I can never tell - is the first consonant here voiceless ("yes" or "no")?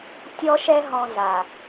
yes